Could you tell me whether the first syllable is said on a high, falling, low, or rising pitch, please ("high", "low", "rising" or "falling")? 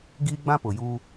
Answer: high